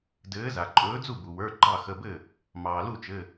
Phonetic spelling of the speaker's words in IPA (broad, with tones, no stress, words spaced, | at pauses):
dɘː˨˥za˩ ǃʼɵː˨˥d͡zu˥˩bu˩wə˞˩˧˩ ɡ͡ǃɑ˥˩xə˩˧˩bɘ˥˩ | mɑː˩lu˥˩t͡ʃɘ˩˧˩